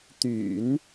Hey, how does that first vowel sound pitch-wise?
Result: low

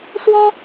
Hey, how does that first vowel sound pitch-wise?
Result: high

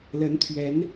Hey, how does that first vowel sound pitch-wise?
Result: rising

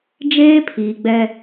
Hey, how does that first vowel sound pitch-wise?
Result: high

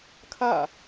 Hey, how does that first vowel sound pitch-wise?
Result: falling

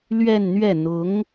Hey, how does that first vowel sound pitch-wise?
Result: falling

